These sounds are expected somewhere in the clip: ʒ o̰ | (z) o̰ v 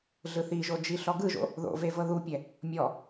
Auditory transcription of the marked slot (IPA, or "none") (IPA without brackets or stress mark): ð